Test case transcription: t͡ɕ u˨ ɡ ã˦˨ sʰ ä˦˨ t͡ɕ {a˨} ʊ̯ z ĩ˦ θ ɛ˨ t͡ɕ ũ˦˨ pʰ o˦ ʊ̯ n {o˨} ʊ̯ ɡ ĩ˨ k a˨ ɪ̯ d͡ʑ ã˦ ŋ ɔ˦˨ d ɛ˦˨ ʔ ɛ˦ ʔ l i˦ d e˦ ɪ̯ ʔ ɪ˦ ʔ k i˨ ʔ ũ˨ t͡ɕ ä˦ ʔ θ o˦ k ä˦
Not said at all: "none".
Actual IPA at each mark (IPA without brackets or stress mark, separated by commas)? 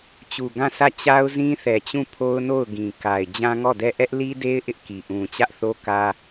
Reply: a˦, o˦˨